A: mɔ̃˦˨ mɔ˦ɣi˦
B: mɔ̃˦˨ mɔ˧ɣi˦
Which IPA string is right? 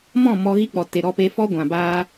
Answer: B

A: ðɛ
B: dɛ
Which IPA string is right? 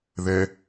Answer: A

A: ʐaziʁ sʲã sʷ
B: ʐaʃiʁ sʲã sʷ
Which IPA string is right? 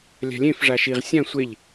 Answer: B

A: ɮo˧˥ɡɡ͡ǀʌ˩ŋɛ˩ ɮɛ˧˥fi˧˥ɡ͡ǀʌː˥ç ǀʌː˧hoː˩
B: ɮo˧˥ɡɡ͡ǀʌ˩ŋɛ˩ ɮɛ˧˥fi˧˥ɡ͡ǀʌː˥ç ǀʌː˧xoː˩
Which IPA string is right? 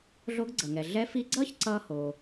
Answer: A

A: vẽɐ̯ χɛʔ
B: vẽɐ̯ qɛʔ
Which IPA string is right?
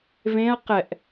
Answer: B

